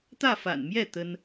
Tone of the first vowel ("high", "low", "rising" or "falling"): falling